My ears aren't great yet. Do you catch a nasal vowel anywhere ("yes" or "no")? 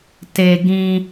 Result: yes